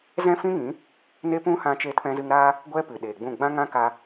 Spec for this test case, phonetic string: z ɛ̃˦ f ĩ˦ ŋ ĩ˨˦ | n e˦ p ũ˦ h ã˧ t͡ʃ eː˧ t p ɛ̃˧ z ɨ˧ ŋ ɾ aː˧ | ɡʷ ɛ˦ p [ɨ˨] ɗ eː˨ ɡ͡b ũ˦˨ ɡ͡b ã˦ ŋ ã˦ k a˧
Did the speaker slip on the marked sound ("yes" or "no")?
no